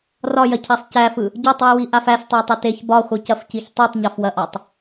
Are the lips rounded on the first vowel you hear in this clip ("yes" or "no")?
yes